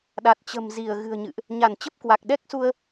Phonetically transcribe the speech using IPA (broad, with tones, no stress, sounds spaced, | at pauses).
ɗ a˨˩ t̚ t͡ɕ ə̤˨˩ m z i˧˩ ə̯ ɣ ɨ̤˨˩ ə̯ ɲ ɨ̰˧˨ ʔ | ɲ a˧˩ n t͡ɕ ə˦˥ p̚ k w a˨˩ k̚ ɗ ɛ˦˥ k̚ s u˧ ə̯